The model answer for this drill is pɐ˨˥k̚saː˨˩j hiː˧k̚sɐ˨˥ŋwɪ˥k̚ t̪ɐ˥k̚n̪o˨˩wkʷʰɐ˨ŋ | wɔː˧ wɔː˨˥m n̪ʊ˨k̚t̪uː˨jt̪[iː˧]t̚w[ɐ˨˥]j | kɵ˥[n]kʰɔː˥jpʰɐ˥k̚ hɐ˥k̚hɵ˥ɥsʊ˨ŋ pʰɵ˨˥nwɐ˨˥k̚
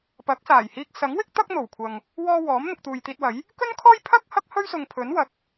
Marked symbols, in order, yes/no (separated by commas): yes, yes, yes